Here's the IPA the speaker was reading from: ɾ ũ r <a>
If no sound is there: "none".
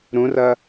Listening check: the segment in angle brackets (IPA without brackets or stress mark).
ɐ